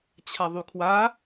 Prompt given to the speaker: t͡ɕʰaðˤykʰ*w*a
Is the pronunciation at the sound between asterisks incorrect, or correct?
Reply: correct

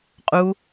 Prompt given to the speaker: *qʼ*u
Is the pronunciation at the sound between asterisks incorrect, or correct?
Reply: correct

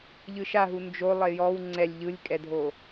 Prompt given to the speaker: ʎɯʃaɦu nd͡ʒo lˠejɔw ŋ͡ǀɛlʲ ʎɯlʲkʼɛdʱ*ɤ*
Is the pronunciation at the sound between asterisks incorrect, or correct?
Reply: incorrect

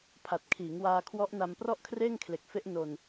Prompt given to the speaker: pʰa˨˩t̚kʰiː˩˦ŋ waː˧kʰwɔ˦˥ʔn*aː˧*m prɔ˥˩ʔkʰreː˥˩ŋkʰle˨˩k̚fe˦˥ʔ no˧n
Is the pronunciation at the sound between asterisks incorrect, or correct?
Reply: incorrect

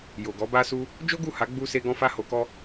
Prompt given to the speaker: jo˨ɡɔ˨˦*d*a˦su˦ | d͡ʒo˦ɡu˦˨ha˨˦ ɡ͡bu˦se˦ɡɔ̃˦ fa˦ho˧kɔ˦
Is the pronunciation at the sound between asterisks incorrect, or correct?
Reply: incorrect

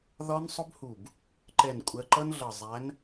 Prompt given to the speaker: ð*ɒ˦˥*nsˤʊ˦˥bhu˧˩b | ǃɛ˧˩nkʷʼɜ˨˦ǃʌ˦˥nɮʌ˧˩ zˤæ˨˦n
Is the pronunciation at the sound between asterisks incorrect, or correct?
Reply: correct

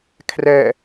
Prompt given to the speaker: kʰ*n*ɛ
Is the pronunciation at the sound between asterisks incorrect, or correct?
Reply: incorrect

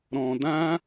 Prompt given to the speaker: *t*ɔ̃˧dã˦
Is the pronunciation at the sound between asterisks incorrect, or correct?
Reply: incorrect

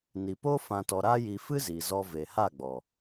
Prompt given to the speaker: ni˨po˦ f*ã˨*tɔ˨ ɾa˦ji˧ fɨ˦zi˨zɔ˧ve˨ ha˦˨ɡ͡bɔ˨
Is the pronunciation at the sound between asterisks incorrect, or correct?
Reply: correct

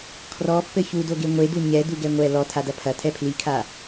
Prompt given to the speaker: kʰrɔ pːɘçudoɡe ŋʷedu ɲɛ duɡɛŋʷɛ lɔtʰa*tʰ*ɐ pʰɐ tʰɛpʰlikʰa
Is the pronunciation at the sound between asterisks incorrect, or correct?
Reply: incorrect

